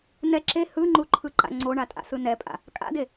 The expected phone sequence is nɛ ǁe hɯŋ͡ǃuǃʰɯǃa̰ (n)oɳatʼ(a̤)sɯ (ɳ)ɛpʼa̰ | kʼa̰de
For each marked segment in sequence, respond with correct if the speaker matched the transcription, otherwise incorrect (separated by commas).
incorrect, incorrect, incorrect